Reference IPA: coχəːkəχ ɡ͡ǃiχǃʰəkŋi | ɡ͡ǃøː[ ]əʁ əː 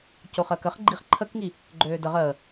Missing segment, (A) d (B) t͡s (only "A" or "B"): A